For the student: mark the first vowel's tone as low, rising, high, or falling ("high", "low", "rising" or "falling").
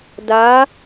rising